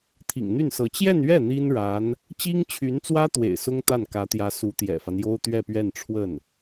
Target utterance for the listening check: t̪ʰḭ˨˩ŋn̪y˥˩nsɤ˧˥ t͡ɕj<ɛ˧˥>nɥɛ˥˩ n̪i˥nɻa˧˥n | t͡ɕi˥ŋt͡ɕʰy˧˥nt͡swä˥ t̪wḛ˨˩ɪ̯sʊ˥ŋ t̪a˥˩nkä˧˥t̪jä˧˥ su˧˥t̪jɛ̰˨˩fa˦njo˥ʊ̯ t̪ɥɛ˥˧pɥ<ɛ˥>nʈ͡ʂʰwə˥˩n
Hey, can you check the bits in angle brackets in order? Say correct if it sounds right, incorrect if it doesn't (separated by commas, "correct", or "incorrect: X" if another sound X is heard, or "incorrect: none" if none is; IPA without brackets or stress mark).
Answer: incorrect: ɛ˥˧, incorrect: ɛ˥˧